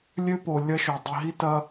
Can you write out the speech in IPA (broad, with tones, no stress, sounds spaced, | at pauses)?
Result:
lʲ ø˦ p o˨ lʲ ɐ˦ ʃ o˨ dˤ i˨ ɦ i˦ t ɐ˦